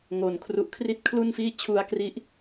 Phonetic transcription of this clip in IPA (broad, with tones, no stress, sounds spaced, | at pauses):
ŋ o˨˩ n kʰ r u˦˥ ʔ kʰ r i˦˥ t̚ kʰ l u˥˩ n f iː˥˩ t͡ɕʰ u˧ a̯ k r i˦˥ ʔ